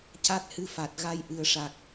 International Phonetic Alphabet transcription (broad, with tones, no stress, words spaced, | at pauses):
ca˦˥t̚hɨ˧fa˨˩t̚ ɣa˧j ʔɨ˨˩ə̯ʂa˨˩k̚